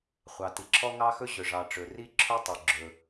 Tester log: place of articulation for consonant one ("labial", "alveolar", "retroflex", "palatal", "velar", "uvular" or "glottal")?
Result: uvular